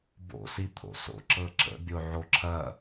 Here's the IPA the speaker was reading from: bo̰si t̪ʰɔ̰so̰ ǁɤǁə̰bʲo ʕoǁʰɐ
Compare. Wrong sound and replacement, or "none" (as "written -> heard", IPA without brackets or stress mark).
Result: ɔ̰ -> o̰